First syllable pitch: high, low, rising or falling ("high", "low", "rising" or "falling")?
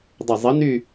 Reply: low